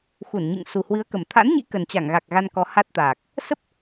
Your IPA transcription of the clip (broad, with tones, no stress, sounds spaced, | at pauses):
x u˧˩ n ɲ ɨ̰˧˨ ŋ s u˨˩ h w ɨ˨˦ ə̯ k ə˨˩ m t̪ʰ a̰˧˥ n ɲ ḭ˧˥ k ə˨˩ n t͡ɕ a˧˩ ŋ ɣ a˨˩ k̚ ɣ a˧ n k ɔ˨˦ h a˦˥ t̚ t̪ aː˨˩ k̚ | s ə˦˥ p̚